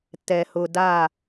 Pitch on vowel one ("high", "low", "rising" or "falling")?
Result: low